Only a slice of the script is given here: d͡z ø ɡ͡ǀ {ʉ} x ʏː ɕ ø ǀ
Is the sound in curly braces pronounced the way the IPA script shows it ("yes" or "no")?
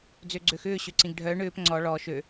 no